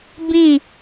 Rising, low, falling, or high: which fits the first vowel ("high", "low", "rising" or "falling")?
falling